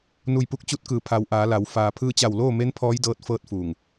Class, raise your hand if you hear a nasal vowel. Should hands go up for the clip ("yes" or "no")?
no